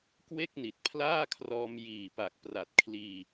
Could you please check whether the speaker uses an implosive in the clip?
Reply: no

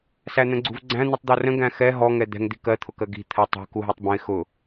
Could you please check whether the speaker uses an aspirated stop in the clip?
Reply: yes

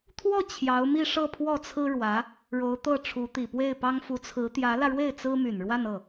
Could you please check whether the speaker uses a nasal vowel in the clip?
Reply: no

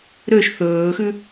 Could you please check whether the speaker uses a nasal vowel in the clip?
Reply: no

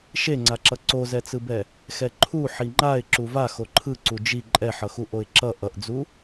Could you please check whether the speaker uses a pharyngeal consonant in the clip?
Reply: yes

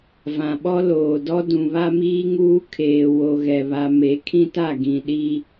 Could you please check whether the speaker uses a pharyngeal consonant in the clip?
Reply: no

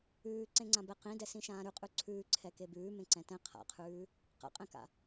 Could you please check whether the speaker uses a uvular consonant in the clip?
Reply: yes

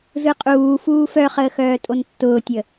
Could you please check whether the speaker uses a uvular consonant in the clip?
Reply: yes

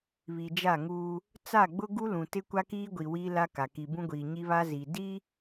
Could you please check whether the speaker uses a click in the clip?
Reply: no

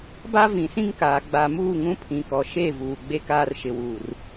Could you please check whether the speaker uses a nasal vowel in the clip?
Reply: yes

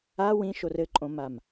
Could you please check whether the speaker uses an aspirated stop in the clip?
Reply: no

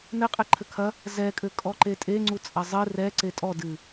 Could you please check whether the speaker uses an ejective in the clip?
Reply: yes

